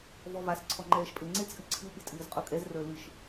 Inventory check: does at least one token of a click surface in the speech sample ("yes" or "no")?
yes